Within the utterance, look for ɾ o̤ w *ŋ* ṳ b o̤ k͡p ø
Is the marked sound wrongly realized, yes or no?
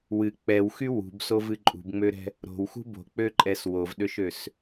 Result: yes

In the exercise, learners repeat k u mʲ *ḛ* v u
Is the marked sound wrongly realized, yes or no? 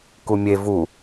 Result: yes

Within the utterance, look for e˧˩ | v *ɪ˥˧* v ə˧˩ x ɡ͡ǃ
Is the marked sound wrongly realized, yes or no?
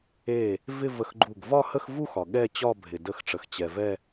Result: no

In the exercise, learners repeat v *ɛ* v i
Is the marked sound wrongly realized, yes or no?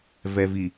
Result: no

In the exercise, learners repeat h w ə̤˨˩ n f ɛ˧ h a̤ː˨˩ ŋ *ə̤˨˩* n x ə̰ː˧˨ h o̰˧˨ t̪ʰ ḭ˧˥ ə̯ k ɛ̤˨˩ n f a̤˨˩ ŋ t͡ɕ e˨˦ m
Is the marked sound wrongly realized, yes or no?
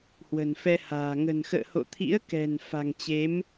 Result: no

